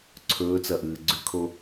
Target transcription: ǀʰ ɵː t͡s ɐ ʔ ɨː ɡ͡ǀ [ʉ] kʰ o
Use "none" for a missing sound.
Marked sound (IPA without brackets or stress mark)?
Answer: ʉ